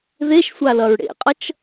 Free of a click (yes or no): yes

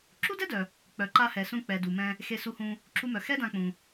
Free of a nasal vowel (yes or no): no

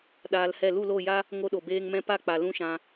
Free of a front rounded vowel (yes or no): yes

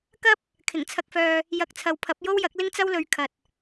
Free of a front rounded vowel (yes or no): no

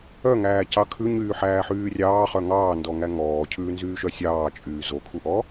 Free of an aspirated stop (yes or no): no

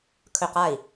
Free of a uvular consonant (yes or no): no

